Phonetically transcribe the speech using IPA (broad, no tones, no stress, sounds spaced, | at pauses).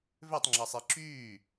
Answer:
v ø tˤ ŋ͡ǁ a sˤ i ǁ yː